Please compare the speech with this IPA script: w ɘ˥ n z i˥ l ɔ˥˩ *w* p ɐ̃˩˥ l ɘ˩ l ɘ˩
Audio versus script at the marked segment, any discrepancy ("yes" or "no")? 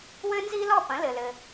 yes